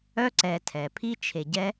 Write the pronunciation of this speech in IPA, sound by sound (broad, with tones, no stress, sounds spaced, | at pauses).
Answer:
œ˦ ǀ ɛ˨ tʰ ɛ˩ pʰ i˦ t͡ʃʰ e˨ ɟ ɛ˦